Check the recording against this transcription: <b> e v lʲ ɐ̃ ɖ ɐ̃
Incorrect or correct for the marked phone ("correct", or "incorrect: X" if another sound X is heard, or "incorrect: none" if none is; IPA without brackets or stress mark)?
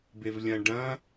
correct